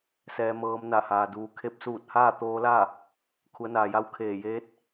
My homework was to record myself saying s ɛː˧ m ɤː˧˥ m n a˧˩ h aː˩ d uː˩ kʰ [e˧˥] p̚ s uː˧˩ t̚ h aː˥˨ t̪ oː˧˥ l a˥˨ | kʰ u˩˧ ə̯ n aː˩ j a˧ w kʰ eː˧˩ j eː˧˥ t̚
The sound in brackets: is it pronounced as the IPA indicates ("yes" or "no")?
yes